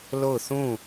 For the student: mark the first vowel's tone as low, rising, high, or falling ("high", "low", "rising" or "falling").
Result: falling